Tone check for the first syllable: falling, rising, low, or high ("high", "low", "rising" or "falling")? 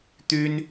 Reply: high